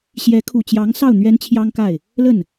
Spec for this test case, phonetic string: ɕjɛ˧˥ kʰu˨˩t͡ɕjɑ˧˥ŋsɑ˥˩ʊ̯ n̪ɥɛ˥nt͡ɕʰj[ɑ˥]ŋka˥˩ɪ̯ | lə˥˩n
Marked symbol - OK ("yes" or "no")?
yes